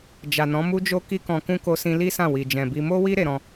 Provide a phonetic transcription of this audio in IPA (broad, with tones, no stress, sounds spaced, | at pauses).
d͡ʒ a˨ n ɔ̃˨˦ m u˦ d͡ʒ o˦ k i˧ k ɔ̃˨ k ũ˧ k o˧ s ĩ˧ l i˦ s ã˦˨ w i˨ d͡ʒ ɛ̃˨ b i˧ m o˦ w i˦ ɾ e˧ ɾ ɔ̃˧